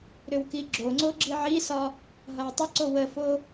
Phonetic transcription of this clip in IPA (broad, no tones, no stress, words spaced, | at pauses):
ɾʏwkiɡ͡ǁoŋ͡ǀo ɡ͡ǁiʕisɒ | ɦʌwtˤəǀo wəfo